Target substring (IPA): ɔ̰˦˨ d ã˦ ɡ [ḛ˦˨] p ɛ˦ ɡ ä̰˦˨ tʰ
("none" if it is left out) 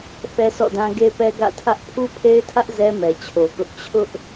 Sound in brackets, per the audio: e˦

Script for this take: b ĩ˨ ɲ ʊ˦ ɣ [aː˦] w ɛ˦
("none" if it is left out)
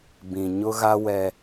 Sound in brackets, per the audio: a˦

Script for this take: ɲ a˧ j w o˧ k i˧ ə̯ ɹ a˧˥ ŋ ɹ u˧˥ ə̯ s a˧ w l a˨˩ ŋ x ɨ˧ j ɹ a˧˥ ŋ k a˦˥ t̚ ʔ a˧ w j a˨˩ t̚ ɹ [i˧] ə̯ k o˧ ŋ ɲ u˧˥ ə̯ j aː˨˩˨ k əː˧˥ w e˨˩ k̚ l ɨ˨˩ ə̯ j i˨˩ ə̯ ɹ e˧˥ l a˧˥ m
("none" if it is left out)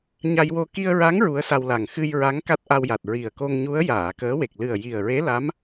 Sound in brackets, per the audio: i˨˩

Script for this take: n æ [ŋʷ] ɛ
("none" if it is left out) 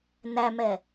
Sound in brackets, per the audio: m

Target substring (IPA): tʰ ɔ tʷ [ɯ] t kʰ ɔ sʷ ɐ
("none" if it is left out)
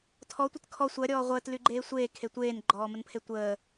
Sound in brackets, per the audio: ə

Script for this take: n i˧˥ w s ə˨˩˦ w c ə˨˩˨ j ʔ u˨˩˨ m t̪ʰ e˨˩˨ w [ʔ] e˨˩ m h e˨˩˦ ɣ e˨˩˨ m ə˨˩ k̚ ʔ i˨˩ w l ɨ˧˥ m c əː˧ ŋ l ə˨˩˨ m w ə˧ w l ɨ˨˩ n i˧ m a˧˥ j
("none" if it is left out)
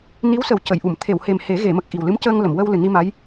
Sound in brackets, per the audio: h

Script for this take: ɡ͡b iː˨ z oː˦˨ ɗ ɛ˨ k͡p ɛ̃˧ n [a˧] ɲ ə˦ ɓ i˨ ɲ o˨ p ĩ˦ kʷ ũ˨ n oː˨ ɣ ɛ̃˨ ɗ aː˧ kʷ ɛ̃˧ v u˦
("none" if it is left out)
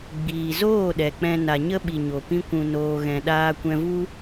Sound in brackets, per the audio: a˧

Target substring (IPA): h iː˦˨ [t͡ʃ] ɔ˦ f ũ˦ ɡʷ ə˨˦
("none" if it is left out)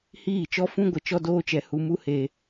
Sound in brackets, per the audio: t͡ʃ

